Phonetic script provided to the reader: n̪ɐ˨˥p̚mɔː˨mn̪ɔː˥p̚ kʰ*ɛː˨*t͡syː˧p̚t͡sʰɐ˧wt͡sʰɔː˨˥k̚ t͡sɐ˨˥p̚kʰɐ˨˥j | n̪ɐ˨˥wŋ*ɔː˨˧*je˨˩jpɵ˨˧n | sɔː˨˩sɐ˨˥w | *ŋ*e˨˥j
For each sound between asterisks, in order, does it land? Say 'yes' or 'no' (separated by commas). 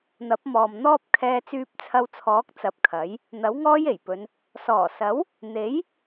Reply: no, no, no